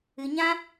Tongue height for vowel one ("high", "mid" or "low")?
high